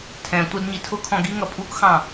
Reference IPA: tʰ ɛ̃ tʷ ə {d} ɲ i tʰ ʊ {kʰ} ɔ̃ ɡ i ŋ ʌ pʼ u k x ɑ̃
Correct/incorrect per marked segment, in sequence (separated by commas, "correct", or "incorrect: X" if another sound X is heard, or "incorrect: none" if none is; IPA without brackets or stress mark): correct, correct